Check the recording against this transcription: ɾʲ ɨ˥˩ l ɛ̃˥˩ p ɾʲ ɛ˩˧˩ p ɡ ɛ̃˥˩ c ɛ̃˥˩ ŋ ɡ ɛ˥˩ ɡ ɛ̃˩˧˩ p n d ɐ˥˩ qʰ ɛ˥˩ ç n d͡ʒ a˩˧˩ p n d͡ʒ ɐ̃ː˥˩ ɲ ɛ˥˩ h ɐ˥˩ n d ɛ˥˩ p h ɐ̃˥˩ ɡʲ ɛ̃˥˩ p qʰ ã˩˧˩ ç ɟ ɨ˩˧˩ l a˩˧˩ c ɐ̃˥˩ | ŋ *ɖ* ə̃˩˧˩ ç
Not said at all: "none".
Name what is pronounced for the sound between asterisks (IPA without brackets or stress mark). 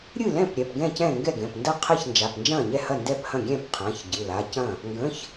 ɡ